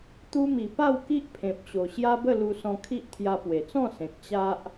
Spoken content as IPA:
t̪ u˧ m i˨˩ p a˥˧ w k i˦ ʔ pʰ ẽ˨ p̚ ɕ o˨˩ ɕ j a˦ b ə˥˧ l u˧ s ɔ̃˧ kʰ i˦ ʔ t̪ʰ j a˧ p w e˨˩ t͡s ɔ̃˥˧ s ẽ˨ k̚ t͡ɕ a˦ ʔ

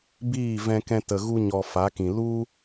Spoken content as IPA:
b iː˦˨ v ɛ̃˧ k ɛ̃˧ t ə˨ ɣ u˧ ɲ ɔ˨ f a˨˦ k ĩ˨ l u˦

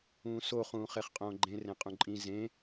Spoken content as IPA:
ũː s o χ ũː χ e χ qʼ õː ɡ͡ǃ ẽ r ẽ qʼ ũ ǃʼ ĩ z ẽ

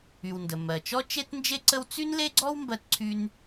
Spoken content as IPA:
y˩ w n d ə˩ m ɜ˩ t͡ʃ ɔ˥ t͡ʃ e˥ t n d͡ʒ e˥ ǀ ə˥ w t͡s y˥ n l e˥ ɡ͡ǀ ɔ˥ w m b ɜ˥ t ǀʰ y˥ n

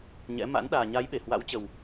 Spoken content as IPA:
ɲ ɛ̰˧˥ m a̰˧˥ n ɗ aː˨˩ ɲ a˨˦ j ɓ e˧˩ h w a̰˧˥ w t͡ɕ ə˨˩ w

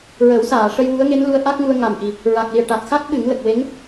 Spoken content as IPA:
ɹ ə˨˩˦ w s aː˨˩˨ ʂ ə˧ j w u˧˥ ə̯ ŋ e˧˥ n l u˧˥ ə̯ ʔ a˦˥ k̚ ŋ u˧ ə̯ ŋ a˨˩ m ʔ i˨˩ | ɹ a˨˩ k̚ l i˨˩ ə̯ ʈ a˨˩ t̚ x a˦˥ k̚ ɓ ɨ˨˩˦ ŋ l ə˨˩ k̚ w e˧˥ ŋ

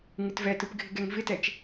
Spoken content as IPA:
ŋ ɪ t v ɛ t ɯ p ɡʱ ɪ ɡ ɛ ŋ v ɪ t ɛ t͡ʃ

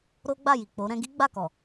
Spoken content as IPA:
ɾ o˦ ɡ͡b a˦˨ j i˨ k͡p o˨˦ ɾ ɛ̃˧ ɡ i˦ ɡ͡b a˦˨ k ɔ˨

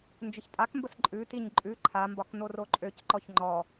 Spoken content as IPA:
n d͡ʒ ə ç tʼ a k m b ə s ǃʼ ʉ t i ɲ ǃʼ ʉ ǃʰ a m b ɒ k n o r o ǃʼ ø c ǃ ɔ ç ŋ͡ǃ ɔ

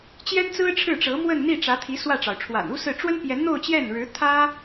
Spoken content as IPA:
t͡ɕ j ɛ˥ n t͡s ɹ̩˥ ʈ͡ʂʰ ɻ̩˥˩ ʈ͡ʂ ɤ˧˥ m w ə˥˧ n n̪ i˥˩ ʈ͡ʂ ä˧˥ t̪ʰ i˧˥ s w ä˥˩ ʈ͡ʂ ɑ˩ ʊ̯ ʈ͡ʂʰ w a̰˨˩ n u˥ s ɹ̩˥˩ ʈ͡ʂ w ə˥ n p j ɛ˧˥ n n̪ o˥˧ ʊ̯ t͡ɕ j ɛ˥˩ n ɻ ɻ̩˧˥ t̪ʰ ä˥

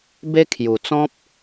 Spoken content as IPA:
b e˦ kʰ j u˨˩ t͡s ɔ̃˦ p̚

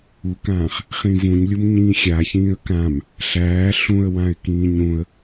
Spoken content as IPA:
u k ãː χ | χ ĩ v ũ ɲ lʲ u m ɲ ĩː xʲ a ç ĩː ə̯ k ã m | ɬ æː ɬ ũ ə̯ w ã ɪ̯ k ĩː ɲ ũ ə̯

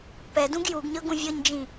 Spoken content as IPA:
p ɛ d ũ ɡ j u ɡ ɲ ɤ ɡ ũ vʲ ɤ ɲ d͡ʒ ĩ

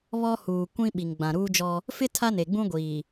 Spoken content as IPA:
β ɔ˦ h uː˨ kʷ ĩ˦ ɓ i˨ ŋ ɡ͡b ã˨ ɾ uː˦ d͡ʒ ɔ˦ | f ɪ˦ tʰ a˦ n e˨ ɡ͡b ũ˦ ɡʷ iː˨

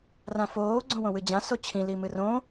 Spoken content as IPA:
r ã f oː ɡ͡ǀ õ w õ w ɨ d͡ʑ ã s o t͡ɕʰ ĩ l i m ɨ r õ

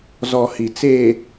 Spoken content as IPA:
z ɔ˨ h i˨ t͡s eː˨

